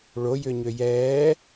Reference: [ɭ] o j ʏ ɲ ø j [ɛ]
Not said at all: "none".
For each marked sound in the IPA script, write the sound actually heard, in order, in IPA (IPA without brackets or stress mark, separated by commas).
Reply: ɭ, ɛː